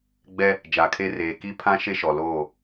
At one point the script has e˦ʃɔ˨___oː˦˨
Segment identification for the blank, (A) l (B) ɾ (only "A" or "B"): A